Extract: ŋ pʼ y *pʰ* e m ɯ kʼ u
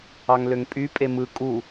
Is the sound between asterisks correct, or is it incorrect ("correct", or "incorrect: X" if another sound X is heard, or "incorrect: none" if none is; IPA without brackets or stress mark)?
incorrect: pʼ